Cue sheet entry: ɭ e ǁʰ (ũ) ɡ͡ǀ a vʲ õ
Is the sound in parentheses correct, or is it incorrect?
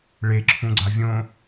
correct